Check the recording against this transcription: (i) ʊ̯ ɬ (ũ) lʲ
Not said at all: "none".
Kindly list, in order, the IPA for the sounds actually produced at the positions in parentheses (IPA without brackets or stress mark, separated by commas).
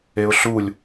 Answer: e, u